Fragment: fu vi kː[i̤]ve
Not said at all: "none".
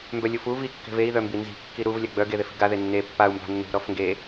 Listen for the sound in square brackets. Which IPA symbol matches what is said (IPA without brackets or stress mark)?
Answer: e̤